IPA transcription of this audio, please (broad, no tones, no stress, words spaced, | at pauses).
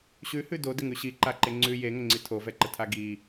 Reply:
ɕʉhʉ dodɪŋʉ ɕiǃaǃe ŋ͡ǀʉ jeŋəŋ͡ǀi tʰovɛǃətʰa ɡi